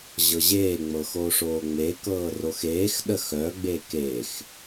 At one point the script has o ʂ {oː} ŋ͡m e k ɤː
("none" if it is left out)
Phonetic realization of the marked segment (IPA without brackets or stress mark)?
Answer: oː